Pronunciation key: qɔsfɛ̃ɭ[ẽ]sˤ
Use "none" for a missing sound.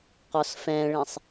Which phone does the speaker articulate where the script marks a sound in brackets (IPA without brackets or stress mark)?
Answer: ẽ